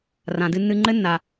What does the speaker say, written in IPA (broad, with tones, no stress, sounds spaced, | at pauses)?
r ã˨ d ɨ˧ nː ɨ˧ ŋ͡ǃ ɘ˦ nː a˨